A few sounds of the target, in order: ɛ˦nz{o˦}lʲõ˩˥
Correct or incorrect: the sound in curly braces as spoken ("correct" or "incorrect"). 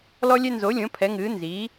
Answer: incorrect